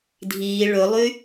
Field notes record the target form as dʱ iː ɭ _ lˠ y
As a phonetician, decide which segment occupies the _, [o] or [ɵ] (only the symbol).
ɵ